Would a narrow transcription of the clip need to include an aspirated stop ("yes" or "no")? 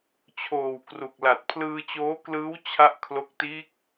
yes